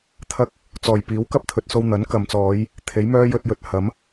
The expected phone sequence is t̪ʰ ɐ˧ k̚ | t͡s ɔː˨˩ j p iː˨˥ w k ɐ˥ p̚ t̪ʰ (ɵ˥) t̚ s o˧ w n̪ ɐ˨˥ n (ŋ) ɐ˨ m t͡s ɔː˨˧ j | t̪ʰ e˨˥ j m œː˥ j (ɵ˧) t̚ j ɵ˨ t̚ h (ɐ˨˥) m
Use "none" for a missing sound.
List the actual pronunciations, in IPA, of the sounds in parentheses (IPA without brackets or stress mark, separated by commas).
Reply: ɵ˨, k, ɵ˧, ɐ˨˥